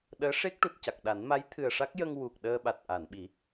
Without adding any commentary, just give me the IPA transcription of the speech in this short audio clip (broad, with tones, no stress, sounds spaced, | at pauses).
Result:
ɗ əː˧˥ ʂ e˦˥ k̚ ʈ u˨˩ t̚ c a˨˩ k̚ ɗ a˨˩˦ n m a˧˥ j t̪ʰ ɨ˨˩ ə̯ ʂ a˦˥ k̚ j ə˧ ŋ w u˨˩ k̚ ɗ əː˧ ɓ a˨˩ t̚ ʔ a˨˩˨ n ɓ i˨˩˦